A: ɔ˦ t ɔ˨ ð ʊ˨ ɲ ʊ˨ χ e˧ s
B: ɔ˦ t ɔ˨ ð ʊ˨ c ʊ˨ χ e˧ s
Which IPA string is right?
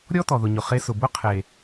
A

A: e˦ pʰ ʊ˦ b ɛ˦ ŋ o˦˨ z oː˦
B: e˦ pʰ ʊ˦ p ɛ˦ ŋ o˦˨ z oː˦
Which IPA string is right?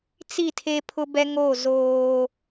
A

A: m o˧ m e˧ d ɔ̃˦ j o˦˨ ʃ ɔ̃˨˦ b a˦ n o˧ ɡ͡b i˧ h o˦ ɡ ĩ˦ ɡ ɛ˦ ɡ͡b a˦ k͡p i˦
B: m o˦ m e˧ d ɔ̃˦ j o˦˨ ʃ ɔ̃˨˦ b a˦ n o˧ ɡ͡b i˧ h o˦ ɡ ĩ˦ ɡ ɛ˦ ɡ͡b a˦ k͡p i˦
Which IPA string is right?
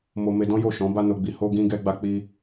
A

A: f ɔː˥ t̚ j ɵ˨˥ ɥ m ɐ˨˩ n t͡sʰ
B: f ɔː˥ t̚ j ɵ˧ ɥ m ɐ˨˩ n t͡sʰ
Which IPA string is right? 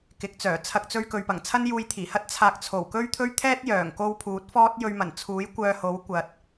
B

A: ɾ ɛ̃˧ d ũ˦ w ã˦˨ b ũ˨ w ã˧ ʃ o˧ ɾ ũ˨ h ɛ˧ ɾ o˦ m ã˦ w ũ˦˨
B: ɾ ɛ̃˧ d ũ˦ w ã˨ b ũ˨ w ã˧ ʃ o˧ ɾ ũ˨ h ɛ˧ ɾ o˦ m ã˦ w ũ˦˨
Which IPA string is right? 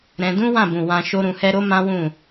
A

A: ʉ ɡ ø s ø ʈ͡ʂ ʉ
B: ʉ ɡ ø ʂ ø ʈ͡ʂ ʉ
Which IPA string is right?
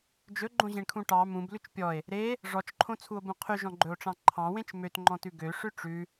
B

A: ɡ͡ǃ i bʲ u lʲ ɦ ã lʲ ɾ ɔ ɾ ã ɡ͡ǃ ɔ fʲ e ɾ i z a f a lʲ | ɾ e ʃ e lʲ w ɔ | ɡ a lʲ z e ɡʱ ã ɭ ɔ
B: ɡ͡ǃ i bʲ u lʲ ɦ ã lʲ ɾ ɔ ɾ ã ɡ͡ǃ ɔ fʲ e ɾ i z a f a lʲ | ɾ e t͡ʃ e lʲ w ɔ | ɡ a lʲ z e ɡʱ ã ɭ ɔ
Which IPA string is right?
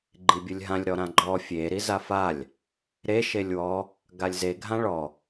A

